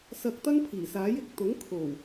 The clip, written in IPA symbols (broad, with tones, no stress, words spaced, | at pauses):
sɐ˧k̚t̪ɐ˥ŋ pʰiː˨˩saː˨˥jɪ˨k̚ t̪ʊ˨˥ŋkʰo˨˩w